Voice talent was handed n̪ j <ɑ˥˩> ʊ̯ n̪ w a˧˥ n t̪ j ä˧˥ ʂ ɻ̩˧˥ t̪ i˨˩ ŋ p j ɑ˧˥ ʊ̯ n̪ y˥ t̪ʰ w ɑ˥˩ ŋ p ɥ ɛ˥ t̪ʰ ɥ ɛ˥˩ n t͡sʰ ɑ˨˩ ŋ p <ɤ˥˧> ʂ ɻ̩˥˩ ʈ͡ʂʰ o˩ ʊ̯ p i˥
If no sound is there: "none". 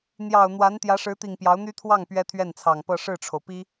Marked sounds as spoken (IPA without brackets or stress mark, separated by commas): ɑ˨˩, ɤ˥˧